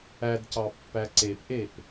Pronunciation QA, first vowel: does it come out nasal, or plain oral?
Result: oral